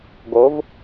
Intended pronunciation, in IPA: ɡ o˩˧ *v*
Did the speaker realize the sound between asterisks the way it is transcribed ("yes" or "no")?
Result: yes